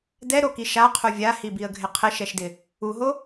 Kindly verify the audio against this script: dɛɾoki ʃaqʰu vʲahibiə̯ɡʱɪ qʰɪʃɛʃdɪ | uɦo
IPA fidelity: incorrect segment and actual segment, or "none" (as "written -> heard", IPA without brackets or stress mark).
none